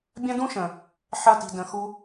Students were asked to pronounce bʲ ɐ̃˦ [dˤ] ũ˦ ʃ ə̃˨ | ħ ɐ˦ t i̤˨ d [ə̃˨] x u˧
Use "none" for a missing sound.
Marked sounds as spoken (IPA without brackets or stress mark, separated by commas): d, ə̃˨